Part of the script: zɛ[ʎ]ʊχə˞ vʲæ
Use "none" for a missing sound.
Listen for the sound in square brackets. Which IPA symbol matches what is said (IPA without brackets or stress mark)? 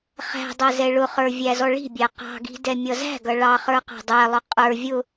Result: ɭ